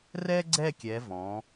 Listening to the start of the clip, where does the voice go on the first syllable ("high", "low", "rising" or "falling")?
high